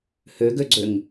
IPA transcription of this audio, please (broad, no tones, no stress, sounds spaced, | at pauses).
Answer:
h ø ɡ ø ɡ͡ǀ ø ŋ